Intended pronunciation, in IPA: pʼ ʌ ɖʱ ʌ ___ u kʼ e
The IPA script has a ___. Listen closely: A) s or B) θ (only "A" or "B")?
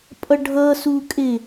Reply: A